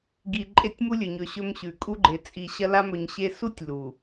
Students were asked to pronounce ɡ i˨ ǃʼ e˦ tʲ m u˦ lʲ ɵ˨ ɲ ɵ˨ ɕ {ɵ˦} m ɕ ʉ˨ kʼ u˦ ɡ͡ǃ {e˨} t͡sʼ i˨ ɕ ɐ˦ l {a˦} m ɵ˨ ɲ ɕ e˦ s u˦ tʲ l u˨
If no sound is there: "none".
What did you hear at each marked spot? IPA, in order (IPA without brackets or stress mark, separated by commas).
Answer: ɵ˦, e˨, a˦